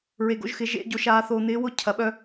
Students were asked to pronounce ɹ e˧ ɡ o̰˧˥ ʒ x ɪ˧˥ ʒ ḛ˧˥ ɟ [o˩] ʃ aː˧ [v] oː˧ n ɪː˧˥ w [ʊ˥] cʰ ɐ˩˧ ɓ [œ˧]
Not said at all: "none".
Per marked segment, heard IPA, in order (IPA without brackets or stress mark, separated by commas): o˧, θ, ʊ˥, œ˧